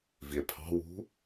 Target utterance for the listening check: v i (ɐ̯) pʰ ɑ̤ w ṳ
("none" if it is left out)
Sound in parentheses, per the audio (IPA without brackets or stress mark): e̯